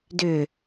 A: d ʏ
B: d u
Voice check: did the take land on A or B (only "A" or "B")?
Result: A